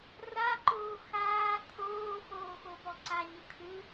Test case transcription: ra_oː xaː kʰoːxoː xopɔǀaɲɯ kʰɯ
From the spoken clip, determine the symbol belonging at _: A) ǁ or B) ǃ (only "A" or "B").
B